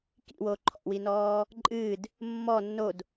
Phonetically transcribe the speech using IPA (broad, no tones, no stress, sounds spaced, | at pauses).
k ḭ w o ǃʰ ɔ̰ w i n ɔː | ǃʼ ɨː d | mː ɔ nː o d